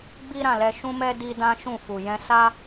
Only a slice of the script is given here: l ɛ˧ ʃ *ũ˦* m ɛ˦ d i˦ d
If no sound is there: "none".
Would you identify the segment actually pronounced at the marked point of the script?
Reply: ũ˦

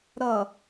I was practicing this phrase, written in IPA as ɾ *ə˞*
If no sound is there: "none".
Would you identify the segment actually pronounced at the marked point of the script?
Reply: ʌ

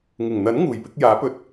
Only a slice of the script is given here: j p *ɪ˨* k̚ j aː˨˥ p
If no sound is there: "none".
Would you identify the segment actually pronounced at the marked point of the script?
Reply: ɪ˧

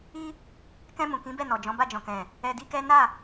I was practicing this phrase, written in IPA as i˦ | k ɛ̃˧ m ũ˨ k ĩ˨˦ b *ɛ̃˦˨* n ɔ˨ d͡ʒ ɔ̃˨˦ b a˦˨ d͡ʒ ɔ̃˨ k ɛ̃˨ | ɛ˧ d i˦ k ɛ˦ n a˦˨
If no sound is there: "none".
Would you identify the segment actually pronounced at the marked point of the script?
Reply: ɛ˦˨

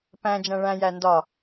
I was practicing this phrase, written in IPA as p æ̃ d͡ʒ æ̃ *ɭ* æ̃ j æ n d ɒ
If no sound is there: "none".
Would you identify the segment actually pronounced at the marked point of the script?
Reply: ɭ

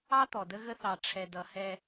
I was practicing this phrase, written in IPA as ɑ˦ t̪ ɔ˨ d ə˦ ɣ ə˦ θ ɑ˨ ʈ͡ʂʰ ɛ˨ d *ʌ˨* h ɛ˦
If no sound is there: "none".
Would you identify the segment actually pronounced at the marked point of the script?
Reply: ʌ˨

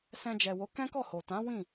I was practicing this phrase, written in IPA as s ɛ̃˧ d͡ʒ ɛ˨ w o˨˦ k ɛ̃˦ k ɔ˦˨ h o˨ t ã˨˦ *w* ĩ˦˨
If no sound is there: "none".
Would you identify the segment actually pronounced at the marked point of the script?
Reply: w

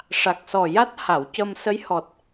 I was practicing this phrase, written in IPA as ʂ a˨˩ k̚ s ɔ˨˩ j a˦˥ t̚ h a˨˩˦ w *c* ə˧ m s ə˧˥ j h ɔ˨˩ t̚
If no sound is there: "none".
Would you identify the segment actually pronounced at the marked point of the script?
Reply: c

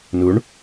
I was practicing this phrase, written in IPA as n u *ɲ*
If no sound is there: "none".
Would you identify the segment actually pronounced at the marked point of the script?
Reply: ɳ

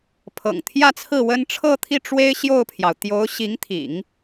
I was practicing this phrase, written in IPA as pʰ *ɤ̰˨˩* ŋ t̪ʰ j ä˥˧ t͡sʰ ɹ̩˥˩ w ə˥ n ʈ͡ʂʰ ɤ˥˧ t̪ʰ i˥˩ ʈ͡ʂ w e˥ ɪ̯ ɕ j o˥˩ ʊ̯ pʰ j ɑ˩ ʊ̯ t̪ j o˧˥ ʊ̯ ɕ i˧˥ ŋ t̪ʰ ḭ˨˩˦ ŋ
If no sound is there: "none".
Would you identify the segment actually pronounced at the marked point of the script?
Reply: ɤ̰˨˩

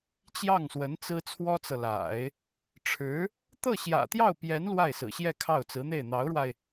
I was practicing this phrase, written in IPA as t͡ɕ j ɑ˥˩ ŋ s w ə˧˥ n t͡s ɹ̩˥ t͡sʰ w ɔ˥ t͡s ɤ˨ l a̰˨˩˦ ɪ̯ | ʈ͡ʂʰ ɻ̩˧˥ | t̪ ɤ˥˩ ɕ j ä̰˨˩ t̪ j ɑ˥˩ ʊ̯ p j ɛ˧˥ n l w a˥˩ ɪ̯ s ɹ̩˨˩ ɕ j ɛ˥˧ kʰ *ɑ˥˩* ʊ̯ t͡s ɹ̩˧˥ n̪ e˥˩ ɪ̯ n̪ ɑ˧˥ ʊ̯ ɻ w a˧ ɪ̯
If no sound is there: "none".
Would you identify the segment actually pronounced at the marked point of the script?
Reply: ɑ˥˩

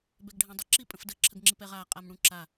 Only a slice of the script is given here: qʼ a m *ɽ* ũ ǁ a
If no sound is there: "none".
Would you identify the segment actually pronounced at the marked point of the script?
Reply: ɽ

